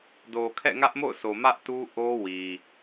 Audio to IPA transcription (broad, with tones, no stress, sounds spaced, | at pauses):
d o˨ kʰ ɛ̰˦˨ ŋ ä˦ ʔ m o̰˦˨ ʊ̯ s o˨ m ä˦ ʔ t u˦ ʔ o˦ w i˨